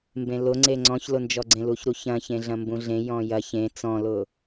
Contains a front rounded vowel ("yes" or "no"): no